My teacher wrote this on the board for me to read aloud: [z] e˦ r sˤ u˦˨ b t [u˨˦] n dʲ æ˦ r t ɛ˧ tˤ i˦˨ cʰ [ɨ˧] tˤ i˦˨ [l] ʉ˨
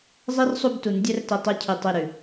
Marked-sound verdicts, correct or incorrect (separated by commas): incorrect, correct, incorrect, incorrect